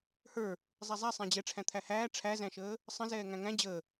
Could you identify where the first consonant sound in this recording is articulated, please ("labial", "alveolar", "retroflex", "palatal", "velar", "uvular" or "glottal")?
glottal